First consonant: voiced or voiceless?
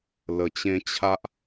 voiced